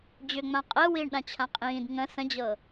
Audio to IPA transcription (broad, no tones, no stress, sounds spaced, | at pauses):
d͡ʑ ʏ ŋ͡m ã qʼ əː w iː ɳ ɗ ã t͡ɕʰ ã qʼ ĩː d ŋ ə̃ s ə̃ d͡ʑ ɤ